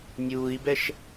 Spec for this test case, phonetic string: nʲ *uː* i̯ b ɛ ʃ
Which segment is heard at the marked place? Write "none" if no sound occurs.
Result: uː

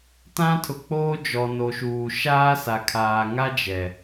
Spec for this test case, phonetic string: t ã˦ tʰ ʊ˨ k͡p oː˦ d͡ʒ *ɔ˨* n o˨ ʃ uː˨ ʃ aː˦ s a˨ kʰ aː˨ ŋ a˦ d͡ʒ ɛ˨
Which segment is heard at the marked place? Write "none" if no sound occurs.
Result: ɔ˨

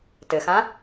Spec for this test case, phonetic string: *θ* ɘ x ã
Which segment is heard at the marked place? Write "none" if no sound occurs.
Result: t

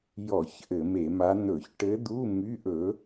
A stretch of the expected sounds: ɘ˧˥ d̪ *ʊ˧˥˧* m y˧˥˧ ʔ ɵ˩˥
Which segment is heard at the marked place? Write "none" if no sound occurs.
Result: u˧˥˧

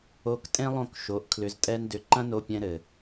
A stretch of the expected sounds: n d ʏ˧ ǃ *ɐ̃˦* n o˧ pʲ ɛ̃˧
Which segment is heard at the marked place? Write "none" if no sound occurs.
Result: ɐ̃˦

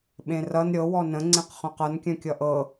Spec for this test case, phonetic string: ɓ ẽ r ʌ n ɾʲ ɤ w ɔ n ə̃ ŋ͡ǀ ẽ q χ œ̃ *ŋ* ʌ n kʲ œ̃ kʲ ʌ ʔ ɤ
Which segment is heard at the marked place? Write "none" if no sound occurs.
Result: q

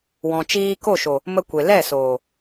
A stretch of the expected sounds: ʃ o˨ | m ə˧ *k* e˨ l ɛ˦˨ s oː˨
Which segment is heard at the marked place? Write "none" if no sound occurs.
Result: kʷ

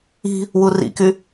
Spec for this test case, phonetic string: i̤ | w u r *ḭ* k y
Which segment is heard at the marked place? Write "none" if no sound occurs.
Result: ḭ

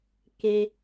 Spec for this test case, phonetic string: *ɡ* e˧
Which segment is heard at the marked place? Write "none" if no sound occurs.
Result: k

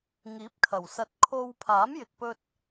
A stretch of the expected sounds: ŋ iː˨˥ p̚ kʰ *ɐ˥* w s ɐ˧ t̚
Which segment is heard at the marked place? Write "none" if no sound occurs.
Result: ɐ˨˩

